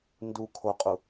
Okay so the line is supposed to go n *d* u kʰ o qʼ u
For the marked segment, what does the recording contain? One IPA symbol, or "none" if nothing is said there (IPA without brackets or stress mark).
d